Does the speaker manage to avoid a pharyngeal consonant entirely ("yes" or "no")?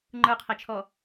yes